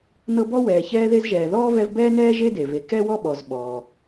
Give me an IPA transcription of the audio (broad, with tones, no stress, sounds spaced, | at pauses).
n ɤ˦ b ɔ˥ w ɛː˨ ç ɛː˦ ð e˦ z ʒ ɛː˨ ð ɔː˥ v ɛ˦ v b ɛː˥ n ɛː˥ ʒ e˥ d e˩ v e˨ k ɛ˥ w ɔ˥ ɓ ɔ˨ z ɓ ɔː˩